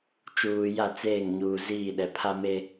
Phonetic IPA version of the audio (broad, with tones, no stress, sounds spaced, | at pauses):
t͡ʃ uː˨ j a˦˨ t͡s eː˦˨ ŋ ɲ uː˨ z iː˦˨ ɗ ɛ˨ pʰ a˦ m e˦